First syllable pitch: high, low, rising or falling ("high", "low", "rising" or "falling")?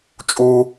high